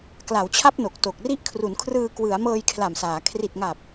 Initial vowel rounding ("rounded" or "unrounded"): unrounded